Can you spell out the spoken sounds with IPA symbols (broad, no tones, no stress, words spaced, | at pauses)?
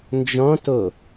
nd͡ʒɔ̃to